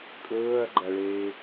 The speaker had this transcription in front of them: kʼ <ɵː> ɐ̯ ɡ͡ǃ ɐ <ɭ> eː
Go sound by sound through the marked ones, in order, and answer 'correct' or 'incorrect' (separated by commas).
correct, correct